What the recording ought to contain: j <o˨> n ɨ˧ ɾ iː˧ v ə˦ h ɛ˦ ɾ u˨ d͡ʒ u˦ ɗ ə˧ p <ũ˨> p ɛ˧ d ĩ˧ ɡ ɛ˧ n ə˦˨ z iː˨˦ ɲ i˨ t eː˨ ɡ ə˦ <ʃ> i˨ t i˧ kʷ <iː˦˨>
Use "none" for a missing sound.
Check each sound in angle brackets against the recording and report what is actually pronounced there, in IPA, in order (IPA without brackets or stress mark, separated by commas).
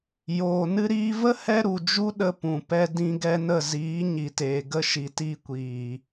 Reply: oː˨, ũ˨, ʃ, iː˨